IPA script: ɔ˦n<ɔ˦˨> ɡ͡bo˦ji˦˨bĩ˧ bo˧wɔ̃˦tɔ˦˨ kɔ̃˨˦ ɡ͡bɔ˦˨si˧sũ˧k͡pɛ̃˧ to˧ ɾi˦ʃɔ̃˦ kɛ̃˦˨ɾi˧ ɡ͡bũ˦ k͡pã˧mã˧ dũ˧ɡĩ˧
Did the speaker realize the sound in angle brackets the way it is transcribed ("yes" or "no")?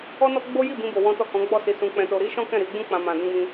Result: no